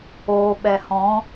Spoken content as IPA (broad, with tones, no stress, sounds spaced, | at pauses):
oː˨ ɓ ɛ˨ h ɔ̃˨˦